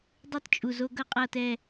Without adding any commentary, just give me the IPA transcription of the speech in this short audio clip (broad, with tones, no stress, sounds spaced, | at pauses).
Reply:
dˤ ɯ˦ t t͡ʃʼ u˨ z o˦ ɡ ʌ˦ qʼ ʌ˦˨ t ɛ˦˨